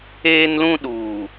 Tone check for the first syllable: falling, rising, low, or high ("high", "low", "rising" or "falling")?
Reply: high